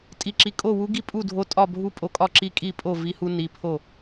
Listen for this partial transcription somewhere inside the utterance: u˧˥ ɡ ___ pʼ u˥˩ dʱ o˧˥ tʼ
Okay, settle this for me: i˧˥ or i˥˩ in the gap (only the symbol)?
i˥˩